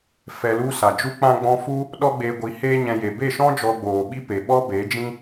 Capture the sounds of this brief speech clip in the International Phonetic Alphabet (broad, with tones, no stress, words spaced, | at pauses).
fɛ˧lu˦sa˨ d͡ʒu˦k͡pã˦ɡ͡bɔ̃˦ fu˦ | ɗɔ˦ɡ͡beː˧ɡʷi˨˦ heː˦ɲɛ̃˧je˨ be˦˨ʃɔ̃˦ d͡ʒɔ˧ɡ͡boː˨ɓi˦pe˨ ɓɔ˦be˨˦d͡ʒĩ˦